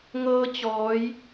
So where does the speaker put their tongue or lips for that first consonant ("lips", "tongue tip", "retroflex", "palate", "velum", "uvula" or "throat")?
velum